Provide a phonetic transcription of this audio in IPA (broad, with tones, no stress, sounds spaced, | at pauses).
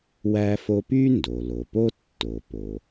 w æ˥ f o˥ p y˥ n d o˩ l o˩ p o˥ tː o˩ p o˩